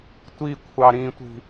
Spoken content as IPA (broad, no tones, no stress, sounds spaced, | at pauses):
tʷ i kʷʰ ɑ ɾ ĩ tʷ i̤